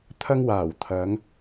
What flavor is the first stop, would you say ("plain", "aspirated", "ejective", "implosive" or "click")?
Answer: aspirated